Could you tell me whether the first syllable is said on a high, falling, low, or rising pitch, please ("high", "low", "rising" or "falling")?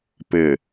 low